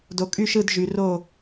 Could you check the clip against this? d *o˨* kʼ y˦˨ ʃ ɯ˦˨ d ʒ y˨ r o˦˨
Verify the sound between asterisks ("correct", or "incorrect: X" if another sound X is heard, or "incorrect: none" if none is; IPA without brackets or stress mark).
correct